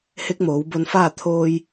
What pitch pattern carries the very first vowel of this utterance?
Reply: rising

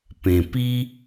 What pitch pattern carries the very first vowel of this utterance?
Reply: low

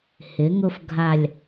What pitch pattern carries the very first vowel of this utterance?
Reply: rising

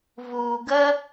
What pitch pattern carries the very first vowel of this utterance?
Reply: low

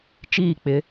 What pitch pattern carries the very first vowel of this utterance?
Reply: falling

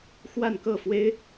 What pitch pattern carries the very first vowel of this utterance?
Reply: falling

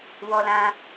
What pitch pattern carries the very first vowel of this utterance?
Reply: high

